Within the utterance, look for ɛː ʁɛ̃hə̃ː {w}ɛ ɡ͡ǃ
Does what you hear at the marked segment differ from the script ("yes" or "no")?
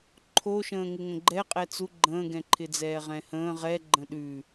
yes